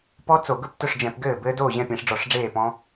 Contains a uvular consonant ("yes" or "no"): no